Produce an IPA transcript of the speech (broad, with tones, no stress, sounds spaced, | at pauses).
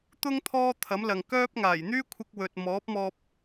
t̪ ʊ˥ ŋ t̪ʰ ɔː˥ t̪ʰ ɐ˨˥ m l ɐ˨ ŋ k œː˥ p̚ ŋ aː˨˩ j n̪ yː˥ kʷʰ ɪ˧ k̚ w ɵ˨ t̚ m ɔː˨˥ p̚ m ɔː˧ p̚